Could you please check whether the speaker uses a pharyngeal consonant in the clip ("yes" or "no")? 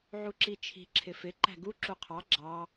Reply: yes